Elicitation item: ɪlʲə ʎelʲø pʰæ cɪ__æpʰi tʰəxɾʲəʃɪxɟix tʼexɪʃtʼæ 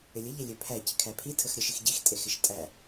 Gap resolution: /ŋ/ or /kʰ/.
kʰ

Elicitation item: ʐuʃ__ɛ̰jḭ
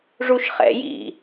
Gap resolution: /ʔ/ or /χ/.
χ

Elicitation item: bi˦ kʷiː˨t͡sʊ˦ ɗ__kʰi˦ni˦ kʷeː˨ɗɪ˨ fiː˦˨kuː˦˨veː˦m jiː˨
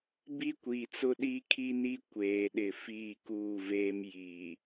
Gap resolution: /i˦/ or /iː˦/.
i˦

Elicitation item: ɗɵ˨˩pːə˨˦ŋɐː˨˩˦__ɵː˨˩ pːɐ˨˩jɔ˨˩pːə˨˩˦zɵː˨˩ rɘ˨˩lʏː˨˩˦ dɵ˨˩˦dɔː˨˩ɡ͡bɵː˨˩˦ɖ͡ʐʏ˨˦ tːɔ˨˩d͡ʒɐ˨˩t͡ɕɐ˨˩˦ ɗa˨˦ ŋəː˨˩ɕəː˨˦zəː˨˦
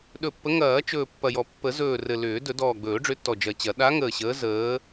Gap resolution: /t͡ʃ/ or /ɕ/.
t͡ʃ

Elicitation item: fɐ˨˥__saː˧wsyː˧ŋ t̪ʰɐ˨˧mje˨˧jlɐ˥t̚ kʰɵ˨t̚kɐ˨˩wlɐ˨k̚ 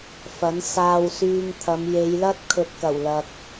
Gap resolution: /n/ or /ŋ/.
n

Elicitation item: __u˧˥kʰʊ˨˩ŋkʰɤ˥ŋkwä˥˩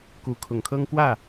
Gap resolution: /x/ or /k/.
k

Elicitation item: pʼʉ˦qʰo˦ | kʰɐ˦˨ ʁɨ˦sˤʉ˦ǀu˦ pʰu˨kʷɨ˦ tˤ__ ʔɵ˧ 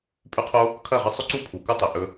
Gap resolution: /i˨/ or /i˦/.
i˨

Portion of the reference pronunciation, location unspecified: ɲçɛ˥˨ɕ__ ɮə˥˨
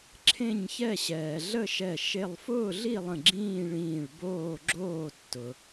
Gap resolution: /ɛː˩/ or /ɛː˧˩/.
ɛː˩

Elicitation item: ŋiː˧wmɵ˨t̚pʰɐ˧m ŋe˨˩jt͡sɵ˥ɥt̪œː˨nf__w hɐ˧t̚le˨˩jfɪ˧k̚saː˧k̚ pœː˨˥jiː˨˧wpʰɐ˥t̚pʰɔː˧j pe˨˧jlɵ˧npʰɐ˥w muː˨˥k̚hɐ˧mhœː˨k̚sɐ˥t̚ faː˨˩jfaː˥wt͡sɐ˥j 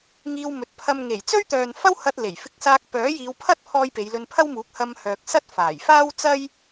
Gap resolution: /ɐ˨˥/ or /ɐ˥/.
ɐ˥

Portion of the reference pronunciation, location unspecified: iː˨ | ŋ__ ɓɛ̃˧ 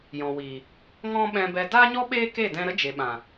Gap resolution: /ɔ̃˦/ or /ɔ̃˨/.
ɔ̃˦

